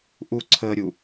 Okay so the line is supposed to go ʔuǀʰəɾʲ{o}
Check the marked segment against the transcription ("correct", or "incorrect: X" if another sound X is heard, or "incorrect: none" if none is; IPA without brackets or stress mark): incorrect: u